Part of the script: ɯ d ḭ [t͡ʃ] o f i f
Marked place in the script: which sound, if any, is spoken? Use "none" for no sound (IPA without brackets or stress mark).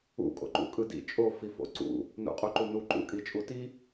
t͡ʃʼ